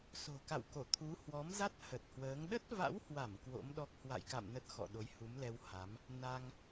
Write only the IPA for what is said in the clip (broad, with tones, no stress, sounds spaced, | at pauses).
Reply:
s o̤˨˩ k a̰˧˨ w k o˧˩ t̪ʰ u˨˦ h w ɔ˨˦ m z a˦˥ t̚ h ə˨˩ t̚ h w əː˨˦ ŋ ɗ ə˦˥ t̚ v a̰˧˥ w h w a˧˩ m k w o̰˧˥ m ɗ ɔ˦˥ k̚ h w a̰˧˨ j k a̰˧˨ m n ə˦˥ t̚ x ɔ̰˧˨ ɗ o˨˦ j h u˨˦ m l ɛ˧ w h a˨˦ m | n a˧ ŋ